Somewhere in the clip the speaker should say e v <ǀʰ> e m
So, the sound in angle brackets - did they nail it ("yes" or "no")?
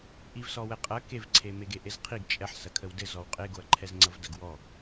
yes